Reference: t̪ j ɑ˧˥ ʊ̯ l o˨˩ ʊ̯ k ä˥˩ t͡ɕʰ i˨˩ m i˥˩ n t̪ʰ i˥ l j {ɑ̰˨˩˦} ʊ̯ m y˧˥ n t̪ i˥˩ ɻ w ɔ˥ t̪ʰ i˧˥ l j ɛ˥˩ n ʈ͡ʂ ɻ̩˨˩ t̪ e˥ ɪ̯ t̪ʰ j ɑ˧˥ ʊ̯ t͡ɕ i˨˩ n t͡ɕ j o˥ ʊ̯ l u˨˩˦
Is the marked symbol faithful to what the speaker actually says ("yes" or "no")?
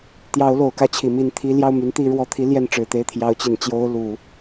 no